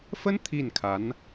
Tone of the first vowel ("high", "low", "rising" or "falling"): high